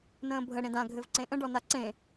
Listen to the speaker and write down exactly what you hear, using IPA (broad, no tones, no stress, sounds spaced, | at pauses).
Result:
n ə̃ː bʱ ə ɽ ẽ d ã ɡʱ ɘ v ǀ ẽ ʔ ə̃ ɖ ɔ n a ǀ ẽ